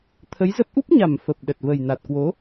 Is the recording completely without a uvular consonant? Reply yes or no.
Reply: yes